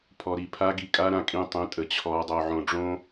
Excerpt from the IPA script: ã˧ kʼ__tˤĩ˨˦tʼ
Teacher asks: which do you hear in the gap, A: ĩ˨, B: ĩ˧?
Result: B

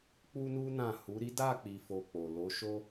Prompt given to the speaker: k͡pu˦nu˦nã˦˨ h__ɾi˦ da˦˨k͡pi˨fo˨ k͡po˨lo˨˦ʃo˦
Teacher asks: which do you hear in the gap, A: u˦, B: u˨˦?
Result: B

